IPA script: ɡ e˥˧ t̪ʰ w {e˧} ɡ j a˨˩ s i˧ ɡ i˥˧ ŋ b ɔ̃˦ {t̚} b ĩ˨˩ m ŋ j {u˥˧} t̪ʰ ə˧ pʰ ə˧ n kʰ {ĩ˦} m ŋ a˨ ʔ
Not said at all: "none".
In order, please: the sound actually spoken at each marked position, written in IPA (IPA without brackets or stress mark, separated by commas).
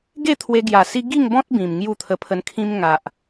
e˧, t̚, u˥˧, ĩ˦